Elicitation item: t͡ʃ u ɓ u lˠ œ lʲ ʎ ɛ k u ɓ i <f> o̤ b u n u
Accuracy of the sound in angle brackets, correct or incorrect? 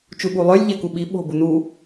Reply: incorrect